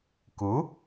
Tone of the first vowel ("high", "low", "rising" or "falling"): rising